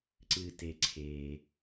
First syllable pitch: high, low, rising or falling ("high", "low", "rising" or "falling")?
low